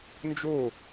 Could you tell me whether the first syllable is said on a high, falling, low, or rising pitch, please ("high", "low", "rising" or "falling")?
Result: falling